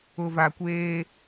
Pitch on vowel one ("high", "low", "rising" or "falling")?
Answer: low